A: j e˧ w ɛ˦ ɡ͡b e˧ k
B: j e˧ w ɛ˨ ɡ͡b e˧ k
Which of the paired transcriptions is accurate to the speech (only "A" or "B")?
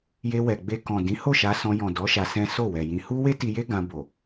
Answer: B